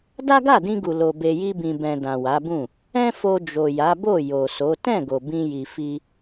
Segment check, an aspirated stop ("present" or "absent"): absent